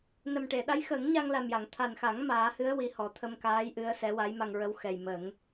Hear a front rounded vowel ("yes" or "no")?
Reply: no